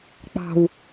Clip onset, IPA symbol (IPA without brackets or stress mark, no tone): k͡p